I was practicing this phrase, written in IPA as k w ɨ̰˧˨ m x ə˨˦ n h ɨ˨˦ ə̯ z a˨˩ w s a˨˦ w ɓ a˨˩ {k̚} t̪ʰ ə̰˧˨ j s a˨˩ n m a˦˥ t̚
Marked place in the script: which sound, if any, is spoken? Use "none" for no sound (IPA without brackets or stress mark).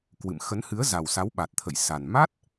t̚